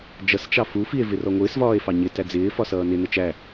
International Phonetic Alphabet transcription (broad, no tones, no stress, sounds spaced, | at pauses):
d͡ʒ ʌ s t͡ʃ ɑ f u f i e̯ v ɪ r ɔ ŋʷ ɪː s v ɒː e̯ f ɑ ɲ ɪ t æ d͡z ɪː f ɒ s ʌː n ɪ n ə t͡ʃ æ